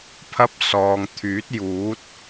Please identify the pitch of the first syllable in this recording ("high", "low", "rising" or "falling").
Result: high